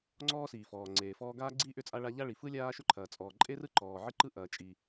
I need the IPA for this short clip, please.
ŋ͡ǀ ɔː˥ s iː˩ f ɔː˩ ŋ͡ǀ eː˩ f ɔː˥ ɡ aː˥ ɡ͡ǀ iː˥ ʔ ʏ˥ t͡sʼ a˥ ɭ a˥ ʎ a˥ ɭ i˩ f ɯ˥ lʲ aː˥ ʃ ʏ˥ ǃʰ ɐː˩ t͡sʼ ɔː˩ ǃʼ e˥ r ɯ˥ ǃ ɔː˩ ʕ ɯ˥ ǃ ɯ˥ ʔ ɐː˩ t͡ʃʼ i˩

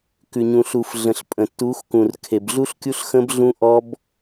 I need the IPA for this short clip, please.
k ʉ˨ ɲ ũ˨ ɬ u˨ f ɮ ə̃˨ ɬ pʼ ə̃˨ tː u˨˦ x k ũ˨ r kʰ e˨ b ɮ u˦ ɬ kʲ u˦ ɬ x ə̃˦ b ɮ ũ˦ ʔ ɔ˦ b

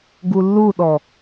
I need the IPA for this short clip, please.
ɡ u lː u ɗ ɔ

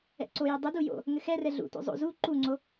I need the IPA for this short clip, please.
ɛ̰ ǀ o j ɛ dˤ ɘ d u j o̰ | ŋ ɘ x ɛ r ɛ ɮ ṵ t o̰ zˤ o̰ z u ǃ u ŋ͡ǀ o

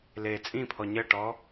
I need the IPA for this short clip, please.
l eː t͡sʼ ĩ pʰ ɔ ɲ ə ʈ ɔ

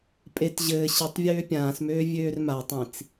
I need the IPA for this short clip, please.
pʼ e t ʑ ɘː ɕ i tˤ vʲ øː pʲ ãː s m øː vʲ øː r m a tˤ ĩ t͡s

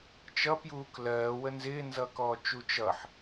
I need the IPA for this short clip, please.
t͡ʃ ʌ p j uː k l ɜː w ə n z ɪː n z ʌː k ɔː t͡ʃ u t͡ʃ ʌ ħ

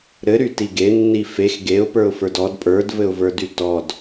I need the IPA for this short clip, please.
ɾ ɘ ɾ y t i ɡ e nː i f e x ɡ e ʊ̯ p ə˞ ʊ̯ f ə˞ d ɔ d pʼ ə˞ d v ɘ ʊ̯ v ə˞ d y t ɔ d

